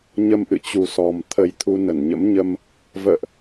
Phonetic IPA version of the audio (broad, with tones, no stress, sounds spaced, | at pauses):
ɲ ə˧ m ʔ ɨ̰˧˨ t͡ɕ u˨˩ s ɔ˨˩ m t̪ʰ ə˨˩ j t̪ʰ u˧ n ə˧˩ n ɲ ə̰˧˥ m ɲ ə˧ m | v ə̰ː˧˨ ʔ